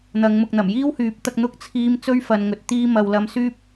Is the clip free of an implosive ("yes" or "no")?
yes